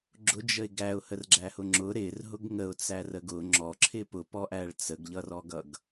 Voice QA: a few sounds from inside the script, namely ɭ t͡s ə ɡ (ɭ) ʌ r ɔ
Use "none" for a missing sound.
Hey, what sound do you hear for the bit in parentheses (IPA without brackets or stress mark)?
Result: ʎ